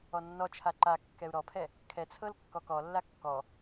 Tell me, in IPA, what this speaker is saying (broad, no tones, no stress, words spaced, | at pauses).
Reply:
ɔnːɔt͡ʃʰa ǃa kːɛu̯ɾɔpʰɛ | kʰɛt͡sʰɤl kːɔkɔlːa kːɔ